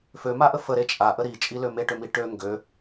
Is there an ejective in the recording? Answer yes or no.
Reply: yes